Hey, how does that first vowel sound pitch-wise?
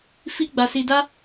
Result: high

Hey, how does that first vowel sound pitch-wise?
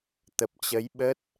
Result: low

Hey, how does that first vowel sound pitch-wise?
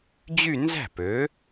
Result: falling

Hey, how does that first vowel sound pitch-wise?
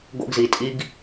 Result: high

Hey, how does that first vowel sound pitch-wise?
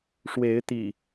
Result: rising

